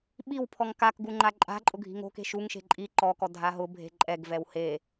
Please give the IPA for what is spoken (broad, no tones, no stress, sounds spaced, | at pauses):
ɓ i w pʰ ɔ ŋ k a k ɡ u ŋ͡ǃ a ǃʼ a̤ ǃʼ ʊ ɡʱ i̤ ŋ o̤ k e̤ ʃ u ŋ ʃ e̤ ǃʼ i ǃ ɔ k ɔ dʱ a ɦ ʊ bʱ e̤ ǃʼ ɛ ɡ v ɛ w h e